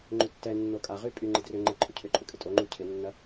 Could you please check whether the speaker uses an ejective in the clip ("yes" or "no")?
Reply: yes